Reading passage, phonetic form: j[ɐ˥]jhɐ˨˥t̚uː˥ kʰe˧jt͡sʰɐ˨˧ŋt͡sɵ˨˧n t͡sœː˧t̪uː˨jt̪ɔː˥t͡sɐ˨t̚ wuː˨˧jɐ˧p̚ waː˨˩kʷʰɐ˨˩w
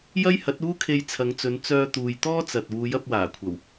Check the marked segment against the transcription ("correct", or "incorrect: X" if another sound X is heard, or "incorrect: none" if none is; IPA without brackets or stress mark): correct